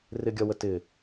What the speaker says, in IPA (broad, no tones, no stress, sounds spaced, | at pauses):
r ɪ ɡʲ ɒ w ə t ɪ